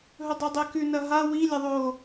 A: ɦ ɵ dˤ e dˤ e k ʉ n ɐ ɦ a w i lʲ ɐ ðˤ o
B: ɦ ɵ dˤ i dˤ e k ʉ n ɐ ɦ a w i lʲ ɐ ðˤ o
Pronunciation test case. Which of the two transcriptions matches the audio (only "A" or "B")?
B